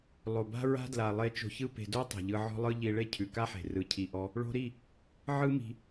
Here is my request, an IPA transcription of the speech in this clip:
lˠ o˨ b a̤˦ ɹ a̤˦ d l a˨ lˠ e˧ t͡ʃ o̤˧ ç ɯ˦ p e̤˧ d o˦ tˤ e̤˨ ʎ ɯ˧ ʕ ɔ̤˦ lˠ ɯ˦ ʎ i˧ ɭ e˦ cʰ ʉ˨ k a˦ ħ e̤˨ r ɯ˧ cʰ i˧ ʔ ɔ˦ | ɭ o̤˧ ɾ i˦˨ | ʕ ɯ˦ m i̤˧

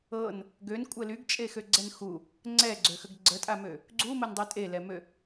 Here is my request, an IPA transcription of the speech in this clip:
ɤ n | ɡ ø n kʷʼ ə l y ɡ t͡ʃʼ e x ø ɡ͡ǀ ɛ n x u | ŋ͡ǀ ɛ ɡ͡ǀ ø x ə ɡ ɡ͡ǀ ə tʼ a m ø | ɡ͡ǀ u m ə n dˤ y tʼ e l ɛ m ø

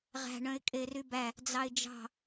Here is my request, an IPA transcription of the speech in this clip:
ʁ æ̤ ɳ œ̃ ɪ̯ kʼ e r y b æ | d͡z ɑ ɪ̯ d͡ʒ ɑ̤

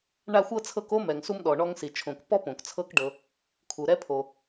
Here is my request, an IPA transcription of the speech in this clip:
ɳ a˦ xʷ ɤ˥ t͡sʰ ɤ˦ k o˥ m ɛ˩ ŋ s u˦ m ɗ ɔ˩ ɳ ɔ˦ ŋ s i˩ t͡ʃʰ õ˨ k p ɔ˥ p õ˩ k t͡sʰ ɤ˦ k ɖ ɤ˨ | kʰ u˩ ɾ ɛ˦ pʰ o˩

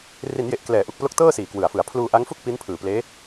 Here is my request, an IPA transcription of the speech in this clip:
r i˩˦ n j e˨˩ ʔ k l ɛː˩˦ ʔ u˨˩ k̚ p l o˦˥ k̚ t ɤː˥˩ s iː˨˩ k w ɯ˨˩ a̯ f ɯ˩˦ a̯ pʰ l uː˧ ʔ a˦˥ ŋ f u˥˩ k̚ p i˦˥ n pʰ ɯː˨˩ p l eː˦˥

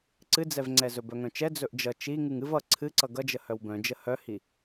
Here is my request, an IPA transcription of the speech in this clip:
ǀ ɨ d͡z ɛ v ŋ͡ǀ ɛ z ɵ b œ ŋ œ̃ t͡ʃ ɛ d͡z ɵ ʔ d͡ʒ ʌ t͡ʃ i ŋ ɨ ŋ ɨ v ʌ ǀʰ ɨ ǀ ʌ ɡ ʌ d͡ʒ ə h œ w b œ̃ d͡ʒ ə h œ h i

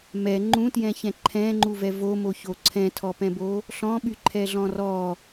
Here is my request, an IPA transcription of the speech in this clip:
m ɛ ŋ͡ǃ ũ t j ɛ̃ ç ɛ̃ ǃʰ ɛ̃ ŋ͡ǃ u v ɛ v o m o ç o ǀʰ ɛ̃ tʰ ɔ p ɛ̃ b o | ɬ ɔ̃ ɓ y ǃʰ ɛ ɮ ɔ̃ r ɔ

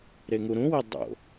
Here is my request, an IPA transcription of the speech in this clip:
ɾ e ŋ u ɾ ũ w i dˤ o̰

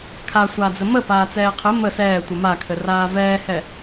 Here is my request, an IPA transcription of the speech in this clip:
kʰ a sʷ aː d͡z ɘ m ə p aː t͡s ɛː qʰ ɘ m ə s ɛː tʷ ə m a kʰ ɘ r aː v ɛː h ɛ

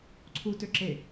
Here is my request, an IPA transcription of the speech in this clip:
ǀʰ u t ø ǁ e

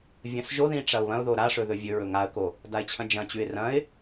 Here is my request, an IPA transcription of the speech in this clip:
vʲ ɐ̃ s ʒ o ð ĩ ʈ͡ʂ ɐ ʊ̯ β ɐ̃ ʊ̯ ð o ɾ a ʂ ɵ ð ɵ vʲ ɵ ɹ ɵ ŋ a ə̯ k o | d a ɪ̯ t͡ɕʰ ɐ̃ d͡ʒ ɐ̃ t͡ɕ ʉ ɪ̯ r ɐ̃ ɪ̯

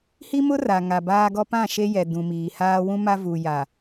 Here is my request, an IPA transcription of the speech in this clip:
h i˦ m ʊ˦ r a˨ ŋ a˨ b aː˦ ɡ ɔ˦ p ã˦˨ ʃ e˦ j ɛ˨ d ũ˨ m iː˨ h aː˦ w ũ˦ m a˦ v u˨ j a˨

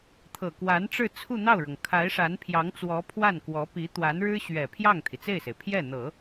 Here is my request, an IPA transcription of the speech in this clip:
t̪ʰ ɤ˨˩ k w a˧˥ n ʈ͡ʂ ɻ̩˥˧ t͡sʰ u˥˧ n̪ ɑ˥˩ ʊ̯ ɻ ɤ˩ ŋ kʰ a˧˥ ɪ̯ ʂ a˧˥ n pʰ j ɑ˧˥ ŋ t͡s w ɔ˧˥ pʰ w a˥˩ n k w ɔ˧˥ p i˧˥ t̪ w a˧˥ n ɻ ɻ̩˥ ɕ ɥ ɛ˨˩ pʰ j ɑ˥˩ ŋ t̪ʰ i˩ t͡s e˥˩ ɪ̯ s e˩ ɪ̯ pʰ j ɛ˥˩ n̪ ɤ˨˩˦

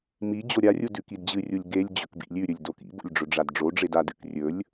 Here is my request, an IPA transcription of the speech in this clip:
m i d͡ʑ o ɾʲ a rʲ u d ʉ k i d d͡ʑ ɨ rʲ u lʲ ɡ e lʲ d͡ʑ ɵ k b ḭ lʲ ʉ ɾʲ ɵ lʲ d o k ḭ b o̰ lʲ ɖ͡ʐ ɵ ɖ͡ʐ a d ɖ͡ʐ o ɖ͡ʐ e d a d ɨ k rʲ ɵ lʲ

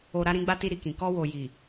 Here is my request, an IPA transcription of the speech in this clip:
o˨ ɾ a˨˦ ɾ ĩ˧ ɡ͡b a˦ t i˧ ɾ i˨ k ĩ˨ k ɔ˧ w o˨ j i˨

